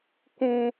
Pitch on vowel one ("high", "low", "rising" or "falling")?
high